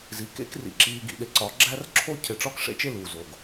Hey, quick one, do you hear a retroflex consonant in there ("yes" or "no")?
yes